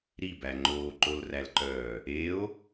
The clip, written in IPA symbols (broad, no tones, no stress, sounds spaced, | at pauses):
ɾ i b æ ŋ͡ǃ oː ǃ o l r æ l ǃ œː | e o̯